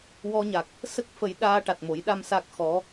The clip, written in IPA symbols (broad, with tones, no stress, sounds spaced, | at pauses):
w ɔ˧ ɲ a˨˩ k̚ | s ə˦˥ k̚ f ə˨˩˦ j ɗ aː˧ ʈ a˨˩ t̚ m o˨˩˦ j ɗ a˧ m s a˦˥ k̚ x ɔ˧˥